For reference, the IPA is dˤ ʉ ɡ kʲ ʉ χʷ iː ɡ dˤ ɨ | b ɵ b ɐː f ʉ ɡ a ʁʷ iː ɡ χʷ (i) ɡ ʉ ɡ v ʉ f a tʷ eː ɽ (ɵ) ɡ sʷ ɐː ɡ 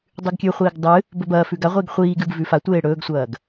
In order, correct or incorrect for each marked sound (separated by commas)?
incorrect, incorrect